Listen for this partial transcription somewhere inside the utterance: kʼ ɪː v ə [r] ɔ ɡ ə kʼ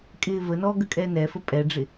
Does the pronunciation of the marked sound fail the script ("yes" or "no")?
yes